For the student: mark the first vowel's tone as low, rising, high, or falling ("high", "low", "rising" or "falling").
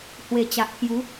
low